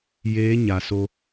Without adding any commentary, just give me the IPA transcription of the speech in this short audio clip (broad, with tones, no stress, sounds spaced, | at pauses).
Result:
j eː˧˥ ɲ a˩ s o˧